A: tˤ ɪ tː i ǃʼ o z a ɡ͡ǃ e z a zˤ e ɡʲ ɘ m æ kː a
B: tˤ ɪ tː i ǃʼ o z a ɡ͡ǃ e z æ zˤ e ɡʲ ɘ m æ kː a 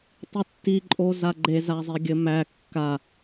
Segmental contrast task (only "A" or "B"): A